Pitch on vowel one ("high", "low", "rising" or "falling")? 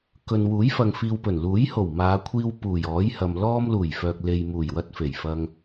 low